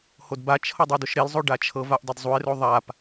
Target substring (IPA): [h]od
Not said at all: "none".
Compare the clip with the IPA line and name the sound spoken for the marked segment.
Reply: h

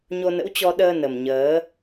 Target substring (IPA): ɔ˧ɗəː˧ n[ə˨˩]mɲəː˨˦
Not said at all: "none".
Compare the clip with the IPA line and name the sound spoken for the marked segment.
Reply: ə˨˩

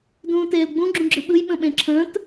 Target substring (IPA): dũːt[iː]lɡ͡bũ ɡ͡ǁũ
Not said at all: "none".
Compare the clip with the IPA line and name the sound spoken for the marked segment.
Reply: eː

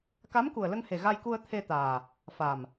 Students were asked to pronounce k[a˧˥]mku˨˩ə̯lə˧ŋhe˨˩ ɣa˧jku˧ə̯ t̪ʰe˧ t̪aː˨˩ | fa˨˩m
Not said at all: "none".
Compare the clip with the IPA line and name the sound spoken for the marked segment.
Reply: a˧˥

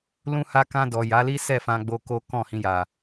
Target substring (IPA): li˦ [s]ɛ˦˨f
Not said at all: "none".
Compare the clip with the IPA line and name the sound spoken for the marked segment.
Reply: s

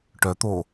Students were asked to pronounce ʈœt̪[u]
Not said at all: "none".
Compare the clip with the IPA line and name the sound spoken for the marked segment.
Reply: o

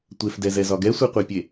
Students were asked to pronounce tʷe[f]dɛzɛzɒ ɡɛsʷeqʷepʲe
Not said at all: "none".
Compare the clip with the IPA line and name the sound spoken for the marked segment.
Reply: f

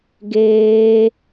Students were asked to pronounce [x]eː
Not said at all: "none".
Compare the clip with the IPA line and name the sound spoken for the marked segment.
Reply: ɡ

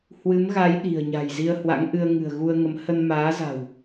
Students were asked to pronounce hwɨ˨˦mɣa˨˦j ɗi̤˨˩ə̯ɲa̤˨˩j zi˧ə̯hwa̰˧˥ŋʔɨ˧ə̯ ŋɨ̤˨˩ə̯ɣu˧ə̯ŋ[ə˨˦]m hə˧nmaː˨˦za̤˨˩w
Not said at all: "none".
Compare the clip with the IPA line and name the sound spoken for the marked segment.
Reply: ə˨˦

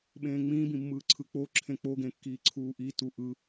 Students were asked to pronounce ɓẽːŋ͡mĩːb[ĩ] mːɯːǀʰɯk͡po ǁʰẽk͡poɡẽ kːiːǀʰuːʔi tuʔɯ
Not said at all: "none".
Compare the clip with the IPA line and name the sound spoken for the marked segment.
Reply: ĩ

